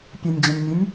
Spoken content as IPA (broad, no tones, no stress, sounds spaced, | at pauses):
pʲ ɐ nʲ d͡ʑ ɐ̃ nʲ mʲ ɨ nʲ